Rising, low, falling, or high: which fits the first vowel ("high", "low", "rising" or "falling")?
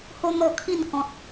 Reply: high